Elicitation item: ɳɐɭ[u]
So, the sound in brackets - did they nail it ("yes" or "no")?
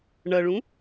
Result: no